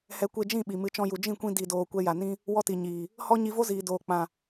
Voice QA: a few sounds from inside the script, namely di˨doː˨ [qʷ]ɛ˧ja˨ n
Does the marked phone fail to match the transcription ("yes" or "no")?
yes